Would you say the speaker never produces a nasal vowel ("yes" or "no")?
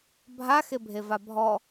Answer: yes